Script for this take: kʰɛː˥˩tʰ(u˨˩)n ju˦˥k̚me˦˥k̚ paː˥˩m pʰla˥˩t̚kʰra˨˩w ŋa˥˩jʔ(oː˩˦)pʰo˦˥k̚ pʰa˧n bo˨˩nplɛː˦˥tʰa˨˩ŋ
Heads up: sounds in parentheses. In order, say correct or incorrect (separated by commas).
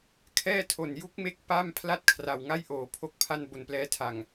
incorrect, correct